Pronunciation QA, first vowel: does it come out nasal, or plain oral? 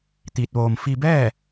oral